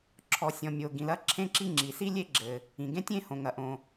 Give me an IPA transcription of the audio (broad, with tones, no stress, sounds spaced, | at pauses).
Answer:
ǁʰ ɔ˩ sʲ ɔ̃˩ mʲ o˩ ɡ ĩ˩ l ɐ˥ ǁʰ ẽ˥ ǁ i˥ ŋ͡ǁ i˩ s i˥ lʲ e˥ ɡ͡ǁ ɘ˩ | ĩ˩ ɡ ẽ˥ tʲ ẽ˥ h õ˩ ŋ ɐ˩ ʔ õ˩